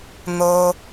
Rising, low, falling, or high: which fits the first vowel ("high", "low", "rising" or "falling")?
high